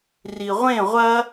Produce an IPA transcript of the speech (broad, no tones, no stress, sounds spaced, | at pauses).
r i ʁʷ ẽ ʁʷ ɐ